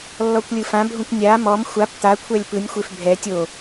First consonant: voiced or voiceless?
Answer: voiced